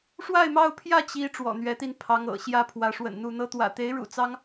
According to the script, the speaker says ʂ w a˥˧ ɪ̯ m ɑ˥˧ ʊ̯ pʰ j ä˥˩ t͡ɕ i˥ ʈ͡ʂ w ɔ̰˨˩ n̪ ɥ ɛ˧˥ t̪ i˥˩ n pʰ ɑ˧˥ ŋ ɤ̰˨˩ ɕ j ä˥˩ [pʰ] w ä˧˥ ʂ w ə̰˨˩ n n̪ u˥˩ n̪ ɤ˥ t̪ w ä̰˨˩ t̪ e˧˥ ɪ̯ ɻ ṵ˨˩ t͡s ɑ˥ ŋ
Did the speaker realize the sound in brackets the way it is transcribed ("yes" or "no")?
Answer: yes